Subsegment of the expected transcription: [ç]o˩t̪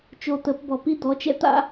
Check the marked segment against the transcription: incorrect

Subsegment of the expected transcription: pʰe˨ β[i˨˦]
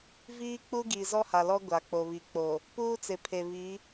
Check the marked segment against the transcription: correct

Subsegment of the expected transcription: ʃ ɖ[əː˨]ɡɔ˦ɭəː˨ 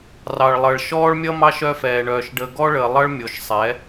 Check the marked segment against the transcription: correct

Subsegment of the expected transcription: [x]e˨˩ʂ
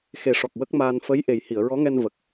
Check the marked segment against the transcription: correct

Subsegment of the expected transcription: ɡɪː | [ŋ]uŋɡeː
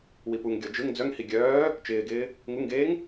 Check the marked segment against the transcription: correct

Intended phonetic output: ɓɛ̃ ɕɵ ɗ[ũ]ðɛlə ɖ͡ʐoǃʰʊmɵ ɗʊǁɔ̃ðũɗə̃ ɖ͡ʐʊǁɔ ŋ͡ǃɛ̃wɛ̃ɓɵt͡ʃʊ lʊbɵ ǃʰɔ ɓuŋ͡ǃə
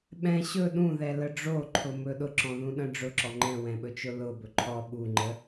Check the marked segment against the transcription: correct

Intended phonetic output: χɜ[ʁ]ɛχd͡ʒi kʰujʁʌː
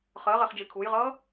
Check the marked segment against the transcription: correct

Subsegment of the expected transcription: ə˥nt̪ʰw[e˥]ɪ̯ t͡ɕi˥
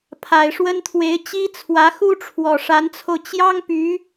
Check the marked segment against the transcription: incorrect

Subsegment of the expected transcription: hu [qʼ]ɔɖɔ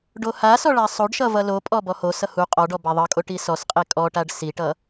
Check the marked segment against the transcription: correct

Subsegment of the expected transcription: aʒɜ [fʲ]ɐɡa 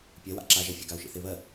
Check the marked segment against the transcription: correct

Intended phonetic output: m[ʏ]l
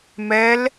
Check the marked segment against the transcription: incorrect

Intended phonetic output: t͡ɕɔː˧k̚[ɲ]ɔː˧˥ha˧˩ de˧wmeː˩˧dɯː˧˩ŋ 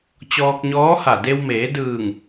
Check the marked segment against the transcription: correct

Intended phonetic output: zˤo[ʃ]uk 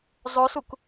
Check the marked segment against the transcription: incorrect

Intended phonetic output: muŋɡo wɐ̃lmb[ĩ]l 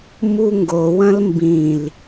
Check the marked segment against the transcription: correct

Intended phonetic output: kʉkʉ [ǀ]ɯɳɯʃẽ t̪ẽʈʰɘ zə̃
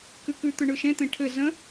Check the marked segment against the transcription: incorrect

